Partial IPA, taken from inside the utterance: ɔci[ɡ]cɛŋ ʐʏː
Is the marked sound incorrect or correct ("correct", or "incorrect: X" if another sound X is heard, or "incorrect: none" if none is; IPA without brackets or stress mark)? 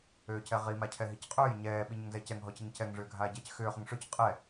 incorrect: ŋ